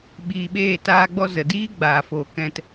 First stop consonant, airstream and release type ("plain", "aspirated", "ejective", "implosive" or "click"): implosive